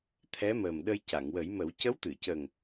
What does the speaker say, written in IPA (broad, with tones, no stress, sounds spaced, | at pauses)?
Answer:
t̪ʰ ɛ˧˥ m ə˨˩ m ɗ ə˧ j c a˨˩˨ ŋ w ə˨˩˦ j m ə˨˩˦ w c ə˧˥ w t̪ ɨ˨˩˨ c ə˨˩ ŋ